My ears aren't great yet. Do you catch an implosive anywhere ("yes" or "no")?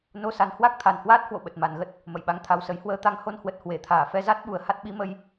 yes